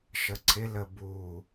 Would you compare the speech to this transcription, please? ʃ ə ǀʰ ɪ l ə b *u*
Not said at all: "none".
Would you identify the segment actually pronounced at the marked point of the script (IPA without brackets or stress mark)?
u